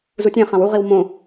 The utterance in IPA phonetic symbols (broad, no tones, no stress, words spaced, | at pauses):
zutʲẽχãw uʁiw mõ